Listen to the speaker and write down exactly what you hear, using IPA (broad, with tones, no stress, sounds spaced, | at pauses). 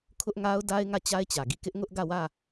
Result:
kʰ ʊ˦ ʔ ŋ a˦ ʊ̯ d a˦ ɪ̯ ŋ ä˦˨ t͡ɕ a˦ ɪ̯ t͡ɕ ä˨ ɡ i˦˨ k ɪ˦ ʔ ŋ ʊ˦ ʔ ɡ ä˦˨ w ä˦˨